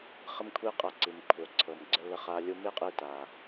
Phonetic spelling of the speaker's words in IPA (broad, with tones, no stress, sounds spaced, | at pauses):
χ ə˥ m kʷʰ e˥ qʼ a˧ ǀ i˩ m kʷʰ œ˩ ǀʰ ɤ˩ m ɡ͡ǀ ə˧ l ə˧ χ a˧ lʲ u˧ m e˥ qʼ i˧ t a˩